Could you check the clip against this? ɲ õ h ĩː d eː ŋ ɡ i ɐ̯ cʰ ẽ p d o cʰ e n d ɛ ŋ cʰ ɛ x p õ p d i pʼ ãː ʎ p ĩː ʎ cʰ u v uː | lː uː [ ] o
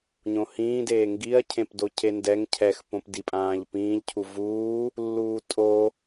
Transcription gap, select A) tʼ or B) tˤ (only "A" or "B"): A